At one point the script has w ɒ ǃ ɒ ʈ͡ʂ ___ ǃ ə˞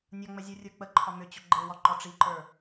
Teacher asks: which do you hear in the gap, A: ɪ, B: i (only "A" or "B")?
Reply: B